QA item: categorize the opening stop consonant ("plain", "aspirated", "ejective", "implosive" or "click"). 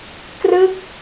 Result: plain